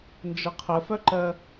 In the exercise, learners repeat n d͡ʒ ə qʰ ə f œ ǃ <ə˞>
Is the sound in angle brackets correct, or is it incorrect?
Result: incorrect